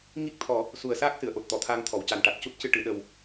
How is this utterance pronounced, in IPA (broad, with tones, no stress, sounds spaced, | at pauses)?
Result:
ŋ i˦˥ k̚ t̪ʰ ɔ˨˩˦ | s u˨˩ ə̯ s aː˦˥ k̚ s ɨ˨˩˨ ə̯ ʔ o˨˩ t̚ t̪ ɔ˨˩˨ t̪ʰ aː˧ ŋ t̪ʰ ɔ˨˩˨ w c a˨˩ n ʈ a˨˩ t̚ c u˦˥ t̚ c ɨ˧ ʈ ɨ˨˩˨ ɗ ə˨˩ w